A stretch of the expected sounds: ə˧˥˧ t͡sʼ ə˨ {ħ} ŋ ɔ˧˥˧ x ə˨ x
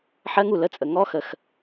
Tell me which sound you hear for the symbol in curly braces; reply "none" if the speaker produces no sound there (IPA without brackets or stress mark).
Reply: none